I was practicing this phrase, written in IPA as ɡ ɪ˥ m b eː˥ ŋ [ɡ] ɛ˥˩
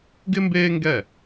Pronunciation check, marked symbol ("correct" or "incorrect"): correct